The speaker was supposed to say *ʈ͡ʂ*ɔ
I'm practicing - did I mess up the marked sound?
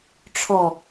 yes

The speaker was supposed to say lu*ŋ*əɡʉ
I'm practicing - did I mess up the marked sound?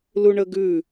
yes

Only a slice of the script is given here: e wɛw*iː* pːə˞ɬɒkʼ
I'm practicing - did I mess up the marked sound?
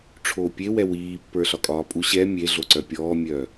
no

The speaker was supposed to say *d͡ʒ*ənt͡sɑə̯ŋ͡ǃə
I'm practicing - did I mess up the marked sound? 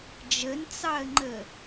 no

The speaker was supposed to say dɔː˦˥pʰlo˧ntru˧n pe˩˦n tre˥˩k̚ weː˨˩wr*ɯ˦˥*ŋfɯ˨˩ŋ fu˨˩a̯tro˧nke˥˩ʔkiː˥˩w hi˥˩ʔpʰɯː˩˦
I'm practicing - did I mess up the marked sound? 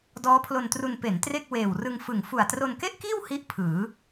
yes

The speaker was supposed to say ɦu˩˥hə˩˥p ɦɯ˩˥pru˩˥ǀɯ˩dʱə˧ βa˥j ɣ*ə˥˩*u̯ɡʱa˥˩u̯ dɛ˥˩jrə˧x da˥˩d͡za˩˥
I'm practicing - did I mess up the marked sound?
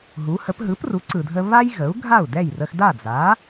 yes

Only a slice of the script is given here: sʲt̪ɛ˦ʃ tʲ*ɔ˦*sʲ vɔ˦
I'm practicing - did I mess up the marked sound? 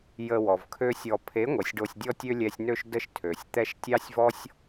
yes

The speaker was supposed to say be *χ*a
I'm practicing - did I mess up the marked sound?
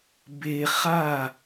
no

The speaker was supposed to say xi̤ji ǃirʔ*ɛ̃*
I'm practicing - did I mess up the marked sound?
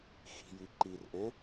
no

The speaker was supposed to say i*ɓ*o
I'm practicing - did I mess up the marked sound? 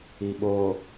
no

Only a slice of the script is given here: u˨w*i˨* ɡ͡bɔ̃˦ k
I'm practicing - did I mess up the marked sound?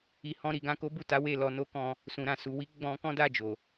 yes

